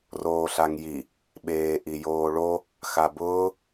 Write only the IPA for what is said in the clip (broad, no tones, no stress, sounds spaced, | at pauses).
r oː ɬ a ŋ j i | ɓ eː ʔ i j oː ɭ o | x a b ʊː